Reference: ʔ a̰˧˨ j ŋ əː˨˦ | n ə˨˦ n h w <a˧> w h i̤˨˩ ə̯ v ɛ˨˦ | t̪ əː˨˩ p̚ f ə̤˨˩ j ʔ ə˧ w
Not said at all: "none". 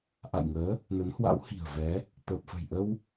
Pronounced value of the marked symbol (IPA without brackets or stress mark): a̰˧˥